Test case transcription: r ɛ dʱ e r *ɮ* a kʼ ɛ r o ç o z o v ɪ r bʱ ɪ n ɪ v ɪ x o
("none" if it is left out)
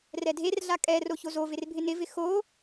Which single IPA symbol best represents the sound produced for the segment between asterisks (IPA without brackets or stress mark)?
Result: ɮ